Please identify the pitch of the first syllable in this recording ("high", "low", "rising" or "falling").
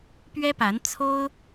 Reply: high